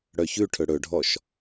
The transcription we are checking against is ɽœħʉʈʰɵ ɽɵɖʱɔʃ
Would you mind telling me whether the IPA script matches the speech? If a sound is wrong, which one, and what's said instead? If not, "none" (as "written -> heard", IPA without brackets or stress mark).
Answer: ħ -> ç